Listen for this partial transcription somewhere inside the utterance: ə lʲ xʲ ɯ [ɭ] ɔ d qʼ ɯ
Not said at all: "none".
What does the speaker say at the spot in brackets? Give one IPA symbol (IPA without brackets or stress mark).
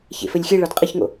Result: ɭ